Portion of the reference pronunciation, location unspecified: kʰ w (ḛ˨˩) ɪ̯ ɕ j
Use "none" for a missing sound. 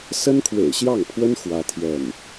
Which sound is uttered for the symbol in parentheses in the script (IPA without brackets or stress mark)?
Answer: ḛ˨˩